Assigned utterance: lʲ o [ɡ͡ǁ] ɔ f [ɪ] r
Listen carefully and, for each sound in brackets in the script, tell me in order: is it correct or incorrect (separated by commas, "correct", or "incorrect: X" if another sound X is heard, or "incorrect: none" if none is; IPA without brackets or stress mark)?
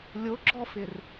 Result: correct, correct